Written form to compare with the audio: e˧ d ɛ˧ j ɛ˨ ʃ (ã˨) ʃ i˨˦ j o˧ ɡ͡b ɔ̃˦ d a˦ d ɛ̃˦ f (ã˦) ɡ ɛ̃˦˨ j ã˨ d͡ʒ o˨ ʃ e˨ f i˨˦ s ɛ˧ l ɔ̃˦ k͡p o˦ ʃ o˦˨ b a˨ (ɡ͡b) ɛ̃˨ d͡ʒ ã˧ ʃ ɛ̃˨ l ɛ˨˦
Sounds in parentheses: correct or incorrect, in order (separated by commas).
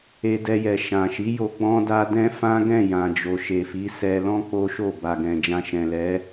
correct, correct, incorrect